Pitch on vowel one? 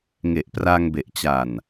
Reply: low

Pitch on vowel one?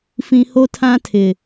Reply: high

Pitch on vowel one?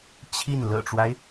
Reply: falling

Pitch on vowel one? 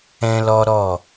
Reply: high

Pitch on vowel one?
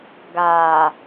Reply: low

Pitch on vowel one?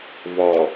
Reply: low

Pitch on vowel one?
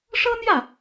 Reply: high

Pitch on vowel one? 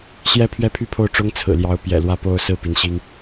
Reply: high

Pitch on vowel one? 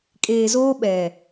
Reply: low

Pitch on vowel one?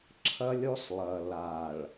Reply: high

